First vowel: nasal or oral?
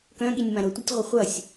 nasal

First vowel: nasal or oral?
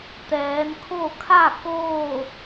oral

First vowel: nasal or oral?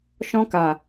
nasal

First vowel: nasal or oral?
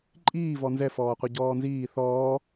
oral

